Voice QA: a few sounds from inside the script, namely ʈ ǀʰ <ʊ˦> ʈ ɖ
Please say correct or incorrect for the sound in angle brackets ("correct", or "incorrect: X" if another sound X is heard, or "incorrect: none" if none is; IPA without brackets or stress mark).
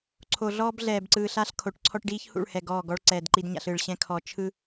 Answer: incorrect: ɔ˦